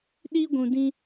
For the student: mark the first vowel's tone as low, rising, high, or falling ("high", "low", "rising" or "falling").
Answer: high